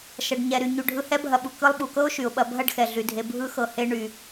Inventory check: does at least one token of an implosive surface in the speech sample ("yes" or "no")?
yes